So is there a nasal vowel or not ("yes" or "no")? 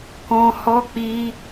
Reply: yes